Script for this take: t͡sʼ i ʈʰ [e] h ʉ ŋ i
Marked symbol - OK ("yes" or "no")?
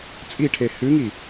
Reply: yes